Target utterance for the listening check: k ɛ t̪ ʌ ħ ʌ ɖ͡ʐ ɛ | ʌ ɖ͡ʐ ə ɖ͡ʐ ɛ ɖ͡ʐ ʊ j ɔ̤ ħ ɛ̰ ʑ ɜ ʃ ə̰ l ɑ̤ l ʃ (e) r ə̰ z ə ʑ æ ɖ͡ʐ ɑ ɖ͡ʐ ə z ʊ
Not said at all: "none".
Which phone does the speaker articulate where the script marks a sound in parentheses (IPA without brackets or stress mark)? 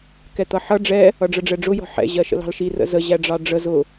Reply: i